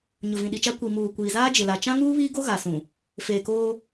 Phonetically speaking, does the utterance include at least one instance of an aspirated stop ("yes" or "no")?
no